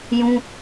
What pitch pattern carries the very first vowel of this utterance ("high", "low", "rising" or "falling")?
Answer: high